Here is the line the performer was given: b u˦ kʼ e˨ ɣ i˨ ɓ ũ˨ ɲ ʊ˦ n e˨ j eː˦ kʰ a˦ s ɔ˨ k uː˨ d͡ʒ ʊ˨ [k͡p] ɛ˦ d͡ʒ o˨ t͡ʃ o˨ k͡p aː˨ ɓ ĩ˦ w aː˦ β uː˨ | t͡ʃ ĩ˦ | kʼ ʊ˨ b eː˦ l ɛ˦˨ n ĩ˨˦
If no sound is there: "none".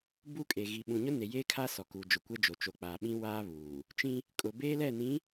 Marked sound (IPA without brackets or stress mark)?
kʷ